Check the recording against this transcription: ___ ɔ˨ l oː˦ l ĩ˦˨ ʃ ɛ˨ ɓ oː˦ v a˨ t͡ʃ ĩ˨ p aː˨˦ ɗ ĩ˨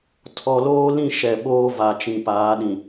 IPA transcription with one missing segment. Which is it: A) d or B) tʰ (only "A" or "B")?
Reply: B